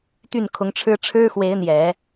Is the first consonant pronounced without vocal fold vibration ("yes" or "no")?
yes